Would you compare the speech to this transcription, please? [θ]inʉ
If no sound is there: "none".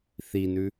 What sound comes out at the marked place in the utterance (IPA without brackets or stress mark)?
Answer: θ